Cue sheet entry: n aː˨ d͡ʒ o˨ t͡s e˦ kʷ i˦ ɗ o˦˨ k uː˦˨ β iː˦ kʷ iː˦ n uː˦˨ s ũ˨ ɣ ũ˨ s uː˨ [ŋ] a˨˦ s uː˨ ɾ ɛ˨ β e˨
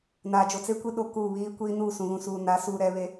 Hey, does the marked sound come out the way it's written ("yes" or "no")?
no